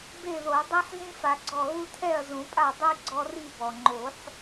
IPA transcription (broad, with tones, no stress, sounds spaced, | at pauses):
b e˥˨ ð o˨˩˦ dˤ e˦ ħ z ĩ˦ f a˨˩˦ ɡ͡ǀ ɔ˧˩ ɣ u˦ tʰ ɛ˥˨ ɐ̯ z ũ˨˩˦ pʼ a˥˨ dˤ i˦ ɡ͡ǀ ɔ˦ r i˥˨ b ɔ˩ ŋ͡ǃ o˨˩˦ ħ